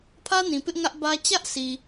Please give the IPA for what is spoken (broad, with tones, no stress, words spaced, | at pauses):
pʰä˦nĩ˨pɪ˦ʔ ŋä˦ʔbä˦ t͡ɕä˦ʔsi˨